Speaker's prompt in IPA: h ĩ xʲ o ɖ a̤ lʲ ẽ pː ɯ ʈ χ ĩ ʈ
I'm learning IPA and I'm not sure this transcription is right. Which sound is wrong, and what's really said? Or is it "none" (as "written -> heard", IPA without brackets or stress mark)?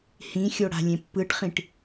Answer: ɖ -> ɽ